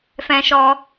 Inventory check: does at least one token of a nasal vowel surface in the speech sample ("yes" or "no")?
yes